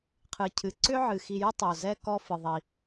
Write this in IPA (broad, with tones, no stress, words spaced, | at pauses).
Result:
qʰɨ˩cʰɨ˩ǀʏ˥ ʕɨ˩xi˨jʏ˥ tˤo˩zɛ˦ kɔ˥fɨ˩ ðˤi˩